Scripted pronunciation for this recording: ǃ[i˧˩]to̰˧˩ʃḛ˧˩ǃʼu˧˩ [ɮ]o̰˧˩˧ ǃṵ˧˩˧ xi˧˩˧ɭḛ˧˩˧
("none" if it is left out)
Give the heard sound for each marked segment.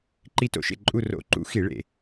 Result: i˧˩, r

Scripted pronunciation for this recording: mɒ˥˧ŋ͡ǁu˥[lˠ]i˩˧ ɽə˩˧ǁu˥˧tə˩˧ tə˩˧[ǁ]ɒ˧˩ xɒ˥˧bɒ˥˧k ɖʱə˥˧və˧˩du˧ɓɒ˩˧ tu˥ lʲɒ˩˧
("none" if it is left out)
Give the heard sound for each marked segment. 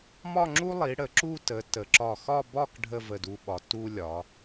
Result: lˠ, ǁ

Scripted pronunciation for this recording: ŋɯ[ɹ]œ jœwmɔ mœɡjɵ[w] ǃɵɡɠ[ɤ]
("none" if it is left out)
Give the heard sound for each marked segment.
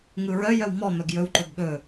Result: ɹ, w, ɵ

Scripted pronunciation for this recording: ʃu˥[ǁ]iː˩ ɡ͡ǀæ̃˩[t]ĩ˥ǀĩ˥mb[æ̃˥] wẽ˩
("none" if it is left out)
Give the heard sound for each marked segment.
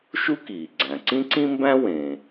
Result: k, ǀ, æ̃˥

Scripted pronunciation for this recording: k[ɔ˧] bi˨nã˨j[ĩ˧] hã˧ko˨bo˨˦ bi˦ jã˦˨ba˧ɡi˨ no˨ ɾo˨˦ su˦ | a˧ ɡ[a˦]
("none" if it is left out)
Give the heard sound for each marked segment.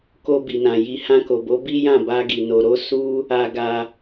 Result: o˧, i˧, a˧

